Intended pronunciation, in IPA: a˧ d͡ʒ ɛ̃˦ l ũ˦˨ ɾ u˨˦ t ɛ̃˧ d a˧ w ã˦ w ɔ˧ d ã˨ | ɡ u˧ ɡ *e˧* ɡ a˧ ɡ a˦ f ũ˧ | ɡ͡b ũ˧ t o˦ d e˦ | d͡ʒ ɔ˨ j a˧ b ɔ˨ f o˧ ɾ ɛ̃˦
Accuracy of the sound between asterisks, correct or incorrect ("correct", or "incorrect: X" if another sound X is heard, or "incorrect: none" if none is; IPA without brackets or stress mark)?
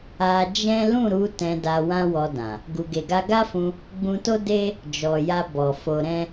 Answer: correct